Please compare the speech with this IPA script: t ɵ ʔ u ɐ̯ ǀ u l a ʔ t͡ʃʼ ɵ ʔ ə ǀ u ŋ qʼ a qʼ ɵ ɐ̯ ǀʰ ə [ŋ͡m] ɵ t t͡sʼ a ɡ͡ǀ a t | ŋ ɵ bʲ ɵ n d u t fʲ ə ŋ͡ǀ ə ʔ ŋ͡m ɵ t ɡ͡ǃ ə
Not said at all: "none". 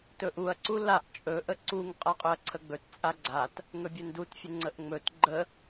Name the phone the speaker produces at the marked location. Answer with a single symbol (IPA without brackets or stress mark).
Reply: ɡ͡b